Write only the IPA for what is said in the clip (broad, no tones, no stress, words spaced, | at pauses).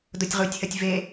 dotʲʁutʲhɐtʲ ve